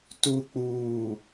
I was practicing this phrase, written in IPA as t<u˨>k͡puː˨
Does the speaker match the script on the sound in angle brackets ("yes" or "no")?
yes